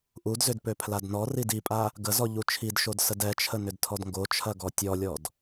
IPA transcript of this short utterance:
ʔudzʏd pøpʰladnɔrid ipʼa | ɡəzɔ ʎut͡ʃʰidʃod sədɛt͡ʃʰə nʏdtʰɔdŋɡot͡ʃʰɐ ɡɔtʲɔlʲɔd

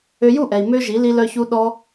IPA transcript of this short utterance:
ø˧ju˦˨ʔɛ˨i̯ mø˦ʒi˨˦ li˧lœ˧çu˧ ɗɔ˧

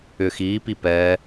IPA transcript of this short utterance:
ʏ xiːpi pɛː

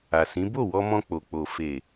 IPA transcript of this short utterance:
a˨sĩ˨˦ bo˦˨wɔ˧mɔ̃˧ k͡po˨k͡po˨ fe˨

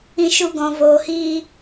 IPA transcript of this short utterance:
ĩ˧ʃu˧ ɡɔ̃˨voː˨hiː˧

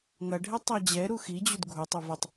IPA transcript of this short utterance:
ŋɐɖʱɛ tˤad͡ʑɛɾu xid͡ʑud ɡʱutˤu vɘtˤ

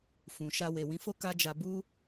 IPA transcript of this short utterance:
fũ˨ʃa˧ we˨wĩ˨˦fo˦ ka˦d͡ʒa˧ bu˦

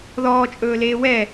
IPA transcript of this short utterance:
ðɔːt͡ʃʼɵːleː wɛ

